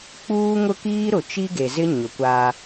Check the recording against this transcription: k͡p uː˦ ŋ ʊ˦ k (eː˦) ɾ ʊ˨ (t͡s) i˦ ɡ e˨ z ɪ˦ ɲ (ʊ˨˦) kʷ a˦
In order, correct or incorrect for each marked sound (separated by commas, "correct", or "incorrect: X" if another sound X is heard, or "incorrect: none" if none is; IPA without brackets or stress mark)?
incorrect: iː˦, incorrect: t͡ʃ, correct